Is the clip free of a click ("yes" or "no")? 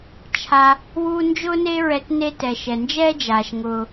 yes